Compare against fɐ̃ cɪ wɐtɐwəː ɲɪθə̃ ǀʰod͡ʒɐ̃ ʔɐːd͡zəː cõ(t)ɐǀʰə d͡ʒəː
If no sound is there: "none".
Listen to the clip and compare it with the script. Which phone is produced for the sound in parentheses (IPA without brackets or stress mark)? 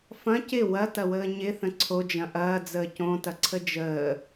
t